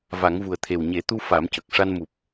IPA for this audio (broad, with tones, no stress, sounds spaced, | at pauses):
v a˨˩˦ ŋ v u˨˩ ə̯ t̪ʰ e˨˩ w ɲ e˨˩˦ t̪ u˧ f a˨˩˦ m c ə˨˩ k̚ ʂ a˧ n m u˨˩ p̚